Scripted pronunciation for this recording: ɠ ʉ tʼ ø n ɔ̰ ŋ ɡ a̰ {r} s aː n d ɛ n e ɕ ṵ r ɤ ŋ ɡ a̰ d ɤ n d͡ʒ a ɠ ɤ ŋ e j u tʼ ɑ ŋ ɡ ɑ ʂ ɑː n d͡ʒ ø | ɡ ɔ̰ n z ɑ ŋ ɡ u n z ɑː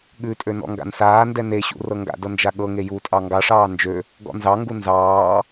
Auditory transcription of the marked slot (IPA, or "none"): n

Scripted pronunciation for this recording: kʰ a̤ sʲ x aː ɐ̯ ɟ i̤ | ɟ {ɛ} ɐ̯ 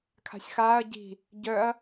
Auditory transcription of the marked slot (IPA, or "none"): œ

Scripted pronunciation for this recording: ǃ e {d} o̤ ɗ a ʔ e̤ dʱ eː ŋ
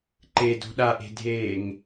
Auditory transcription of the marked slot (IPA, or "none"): d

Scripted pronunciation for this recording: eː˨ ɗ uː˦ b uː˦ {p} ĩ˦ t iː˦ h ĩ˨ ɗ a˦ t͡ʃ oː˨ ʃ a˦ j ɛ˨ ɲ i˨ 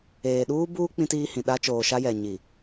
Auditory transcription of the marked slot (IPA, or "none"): k͡p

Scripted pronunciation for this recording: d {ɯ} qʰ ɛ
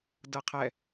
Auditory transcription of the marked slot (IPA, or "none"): ɤ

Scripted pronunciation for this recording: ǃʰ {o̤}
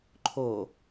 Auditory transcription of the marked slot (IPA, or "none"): o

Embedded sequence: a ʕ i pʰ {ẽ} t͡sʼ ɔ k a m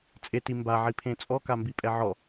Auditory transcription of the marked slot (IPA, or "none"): ẽ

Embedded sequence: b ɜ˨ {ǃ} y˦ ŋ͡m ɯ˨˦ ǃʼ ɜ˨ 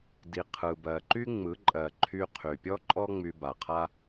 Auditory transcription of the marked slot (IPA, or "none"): ǃ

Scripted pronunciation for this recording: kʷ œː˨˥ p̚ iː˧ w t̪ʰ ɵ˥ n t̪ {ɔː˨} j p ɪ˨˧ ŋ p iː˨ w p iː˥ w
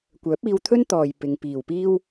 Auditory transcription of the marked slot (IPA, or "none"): ɔː˨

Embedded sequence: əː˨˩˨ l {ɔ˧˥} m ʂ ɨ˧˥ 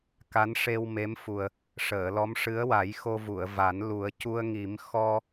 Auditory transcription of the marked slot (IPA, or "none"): ɔ˧˥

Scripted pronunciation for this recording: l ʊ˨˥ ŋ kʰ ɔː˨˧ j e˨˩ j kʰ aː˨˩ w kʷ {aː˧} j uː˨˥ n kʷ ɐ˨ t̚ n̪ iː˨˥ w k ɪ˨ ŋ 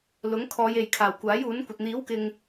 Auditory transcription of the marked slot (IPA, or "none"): aː˨˥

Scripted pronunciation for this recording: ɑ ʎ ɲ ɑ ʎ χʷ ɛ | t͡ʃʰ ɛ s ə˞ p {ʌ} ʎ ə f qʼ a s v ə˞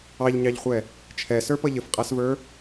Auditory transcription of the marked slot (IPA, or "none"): ʌ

